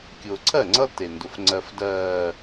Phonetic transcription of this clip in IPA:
kʲ ʊː˨ ǀʰ ɜ˦˨ ŋ͡ǀ ʌ˦ t e˨ n d ʊ˨ f ŋ͡ǀ ɜ˨ f d ɜː˨

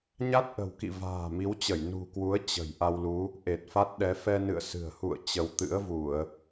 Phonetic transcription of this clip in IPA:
ɲ a˦˥ t̚ ʔ ə̤˨˩ w k ḭ˧˨ v a̤ː˨˩ m i˨˦ w t͡ɕ ə˧˩ j n ṳ˨˩ k w u˨˦ ə̯ t͡ɕ ə̤˨˩ j ʔ a˧ w l u˨˦ | ʔ e˨˩ t̚ f a˦˥ t̚ ɗ ɛ˨˦ f ɛ˧ n ɨ̰˧˨ ə̯ s ɨ̤˨˩ ə̯ h ṵ˧˨ ə̯ t͡ɕ ə˨˦ w t̪ ɨ̰˧˥ ə̯ v u˧˩˨ ə̯

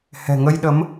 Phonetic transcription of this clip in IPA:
h ɛ̤˨˩ ŋ ə˧ j ɗ ə˨˦ m

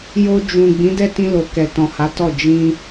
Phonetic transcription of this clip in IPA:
j o˧ d͡ʒ ũ˨ ɡ͡b ĩ˨˦ d ɛ˦˨ t ĩ˧ l o˨ k ɛ˨ t ɔ̃˨ h a˨˦ t ɔ˦˨ d͡ʒ ĩ˧

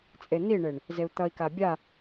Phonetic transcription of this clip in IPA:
t͡sʼ e n̪ i ɳ e ɳ | z e u̯ t̪ ʌ i̯ k a bʲ a

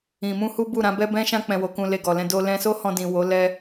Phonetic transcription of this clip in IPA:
ĩ˨ m ũ˧ h u˦ b u˦˨ ɾ ã˨˦ b ɛ˦ b ɛ̃˦ ʃ ã˦ k͡p ɛ̃˧ w o˧ k ũ˧ l e˧ ɡ ɔ˨ l ɛ̃˧ d o˧ l ɛ̃˧ s o˦ h ɔ̃˧ d ĩ˨ w o˨˦ l ɛ˦

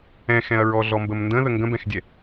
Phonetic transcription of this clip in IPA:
ɛ̃ x ɛ̃ ɐ̯ ɹ ɔ ɮ ɔ m b ə m n d ə̃ ð ə ŋ ɡ ə̃ b ɛ̃ x dʲ ɛ

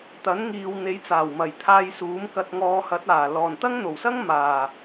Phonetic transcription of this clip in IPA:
t̪ ɐ˨˥ n ŋ iː˨ w n̪ e˨˥ j t͡s aː˨˩ w m ɐ˨˩ j t̪ʰ aː˧ j s uː˨˥ m k ɐ˧ t̚ ŋ ɔː˧ h ɐ˨˥ t̚ aː˨˩ l ɔː˨˩ n t̪ ɐ˥ ŋ n̪ o˨˩ w s ɐ˥ ŋ m aː˨˩

